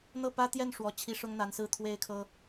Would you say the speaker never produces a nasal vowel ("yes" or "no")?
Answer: yes